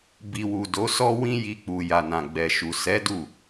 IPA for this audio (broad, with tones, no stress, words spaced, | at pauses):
bi˨wu˨ do˨˦sɔ˦ wĩ˦ji˧k͡pu˨ ja˨nã˨ɡ͡bɛ˨ʃu˨ sɛ˨˦ du˦˨